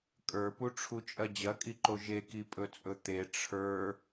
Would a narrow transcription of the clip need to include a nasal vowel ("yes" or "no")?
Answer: no